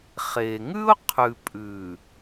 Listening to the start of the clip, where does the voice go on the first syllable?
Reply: low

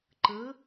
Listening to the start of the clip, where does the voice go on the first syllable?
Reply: rising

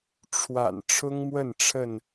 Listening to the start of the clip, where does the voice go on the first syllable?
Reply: low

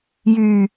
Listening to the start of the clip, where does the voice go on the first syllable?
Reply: low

